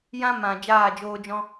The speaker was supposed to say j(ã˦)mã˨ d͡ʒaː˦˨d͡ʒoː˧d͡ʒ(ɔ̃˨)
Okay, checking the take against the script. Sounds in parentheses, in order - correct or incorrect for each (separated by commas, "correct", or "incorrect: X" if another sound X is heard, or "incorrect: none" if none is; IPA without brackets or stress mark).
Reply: correct, incorrect: ɔ̃˦